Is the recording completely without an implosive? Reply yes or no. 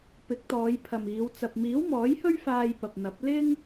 yes